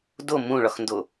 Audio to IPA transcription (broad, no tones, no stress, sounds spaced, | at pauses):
d o m ũ ɭ ɒ x n d o